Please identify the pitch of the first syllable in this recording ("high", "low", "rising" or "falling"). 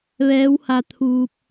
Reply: rising